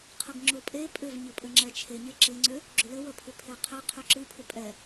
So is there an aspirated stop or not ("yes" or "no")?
yes